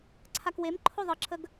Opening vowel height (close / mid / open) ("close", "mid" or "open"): open